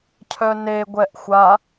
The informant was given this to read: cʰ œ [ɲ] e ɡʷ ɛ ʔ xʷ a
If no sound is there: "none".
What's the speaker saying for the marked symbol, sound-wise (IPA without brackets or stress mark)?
n